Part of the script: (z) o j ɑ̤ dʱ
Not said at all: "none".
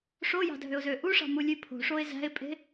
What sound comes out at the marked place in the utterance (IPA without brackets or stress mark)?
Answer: ʂ